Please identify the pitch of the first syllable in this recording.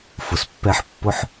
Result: low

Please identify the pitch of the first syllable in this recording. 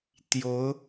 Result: rising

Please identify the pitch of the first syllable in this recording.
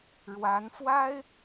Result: rising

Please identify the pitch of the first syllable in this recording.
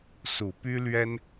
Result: low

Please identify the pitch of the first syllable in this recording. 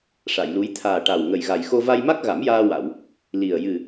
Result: low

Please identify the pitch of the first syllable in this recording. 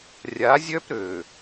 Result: rising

